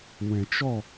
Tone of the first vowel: low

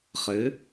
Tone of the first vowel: rising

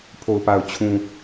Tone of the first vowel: low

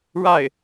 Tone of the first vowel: falling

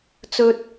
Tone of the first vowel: high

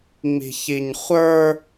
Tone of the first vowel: high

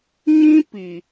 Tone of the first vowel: high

